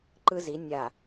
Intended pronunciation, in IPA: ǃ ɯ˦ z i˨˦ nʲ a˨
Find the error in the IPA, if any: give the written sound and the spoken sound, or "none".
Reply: none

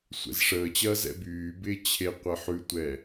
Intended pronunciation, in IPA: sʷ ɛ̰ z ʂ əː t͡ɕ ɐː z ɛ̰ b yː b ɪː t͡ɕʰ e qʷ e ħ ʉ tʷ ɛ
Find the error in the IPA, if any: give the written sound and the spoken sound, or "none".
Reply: none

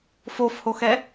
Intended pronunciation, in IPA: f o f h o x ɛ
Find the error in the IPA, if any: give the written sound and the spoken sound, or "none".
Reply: none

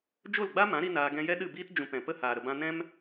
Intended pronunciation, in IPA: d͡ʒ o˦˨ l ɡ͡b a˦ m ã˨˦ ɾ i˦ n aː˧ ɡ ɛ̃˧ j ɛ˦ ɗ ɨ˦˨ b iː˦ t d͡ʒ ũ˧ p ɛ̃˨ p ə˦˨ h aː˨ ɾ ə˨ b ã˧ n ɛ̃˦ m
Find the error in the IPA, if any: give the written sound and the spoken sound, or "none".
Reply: none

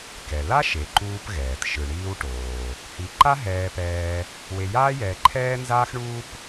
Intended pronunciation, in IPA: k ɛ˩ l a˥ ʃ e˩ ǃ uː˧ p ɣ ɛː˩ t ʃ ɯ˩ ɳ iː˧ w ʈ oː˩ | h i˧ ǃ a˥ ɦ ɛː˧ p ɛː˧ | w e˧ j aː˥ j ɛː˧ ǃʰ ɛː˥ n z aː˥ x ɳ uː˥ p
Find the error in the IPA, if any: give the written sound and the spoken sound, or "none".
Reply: none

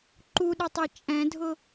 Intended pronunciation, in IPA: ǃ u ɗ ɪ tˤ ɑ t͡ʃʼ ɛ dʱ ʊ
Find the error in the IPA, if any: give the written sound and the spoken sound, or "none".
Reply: ɛ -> ɛ̃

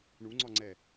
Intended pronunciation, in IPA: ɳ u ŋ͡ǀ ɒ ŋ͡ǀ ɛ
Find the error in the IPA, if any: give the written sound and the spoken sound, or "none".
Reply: none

